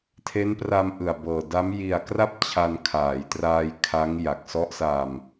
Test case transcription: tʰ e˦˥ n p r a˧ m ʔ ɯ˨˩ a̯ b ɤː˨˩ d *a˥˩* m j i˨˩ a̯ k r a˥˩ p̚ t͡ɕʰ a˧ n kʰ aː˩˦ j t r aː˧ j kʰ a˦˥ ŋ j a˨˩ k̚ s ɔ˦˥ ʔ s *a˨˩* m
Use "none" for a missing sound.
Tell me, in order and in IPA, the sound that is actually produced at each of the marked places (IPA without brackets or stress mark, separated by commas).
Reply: a˦˥, a˧